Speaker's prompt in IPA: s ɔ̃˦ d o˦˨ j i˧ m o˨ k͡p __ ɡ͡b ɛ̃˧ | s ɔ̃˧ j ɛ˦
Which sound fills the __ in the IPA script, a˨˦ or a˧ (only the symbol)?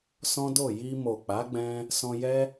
a˨˦